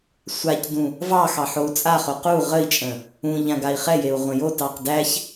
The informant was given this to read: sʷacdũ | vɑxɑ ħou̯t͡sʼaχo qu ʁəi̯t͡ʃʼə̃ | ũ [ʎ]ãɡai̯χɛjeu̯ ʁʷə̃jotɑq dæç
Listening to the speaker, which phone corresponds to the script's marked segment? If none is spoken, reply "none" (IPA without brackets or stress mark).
ʎ